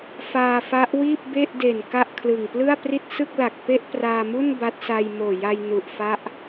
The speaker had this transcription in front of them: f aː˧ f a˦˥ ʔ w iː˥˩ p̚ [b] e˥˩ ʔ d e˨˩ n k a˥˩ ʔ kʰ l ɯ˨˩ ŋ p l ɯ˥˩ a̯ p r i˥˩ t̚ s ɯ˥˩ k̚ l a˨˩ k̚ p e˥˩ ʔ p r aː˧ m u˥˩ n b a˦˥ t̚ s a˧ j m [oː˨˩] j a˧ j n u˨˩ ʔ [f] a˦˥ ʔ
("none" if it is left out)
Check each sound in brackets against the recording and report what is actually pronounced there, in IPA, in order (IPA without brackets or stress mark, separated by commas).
b, oː˨˩, f